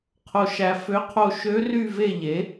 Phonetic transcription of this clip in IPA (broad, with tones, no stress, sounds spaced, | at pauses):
qʰ o˨ ʃ æ˨ f ø˧˥ qʰ o˦˨ ʃ ø˧˥ r y˦˨ v e˦˨ ʎ e˩˥